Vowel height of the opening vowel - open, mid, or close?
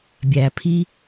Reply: open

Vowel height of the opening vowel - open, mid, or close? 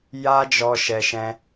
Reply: open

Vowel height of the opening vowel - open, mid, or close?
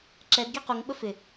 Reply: mid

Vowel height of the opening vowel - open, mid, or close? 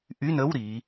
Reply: close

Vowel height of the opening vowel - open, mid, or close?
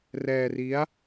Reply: mid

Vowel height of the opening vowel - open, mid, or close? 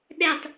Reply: mid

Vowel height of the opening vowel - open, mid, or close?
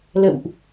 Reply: mid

